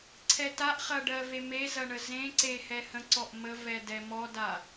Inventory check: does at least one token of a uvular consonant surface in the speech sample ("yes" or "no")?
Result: yes